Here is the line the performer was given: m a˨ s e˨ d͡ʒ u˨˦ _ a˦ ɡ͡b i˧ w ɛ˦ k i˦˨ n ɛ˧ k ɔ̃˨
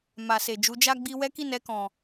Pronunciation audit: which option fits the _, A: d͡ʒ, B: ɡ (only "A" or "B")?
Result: A